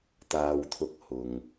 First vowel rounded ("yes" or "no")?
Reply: no